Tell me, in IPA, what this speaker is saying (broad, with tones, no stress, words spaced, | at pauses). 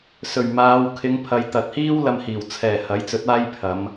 sɵ˨˩ɥmaː˨˧w kʰɪ˨˧ŋpʰɐ˨˧j t̪ɐ˨t̚hiː˥wlɐ˧mhiː˨˩w t͡sʰɛː˨˩ hɐ˨˥jt͡sɵ˨˥t̚aː˥j pʰɐ˨˧m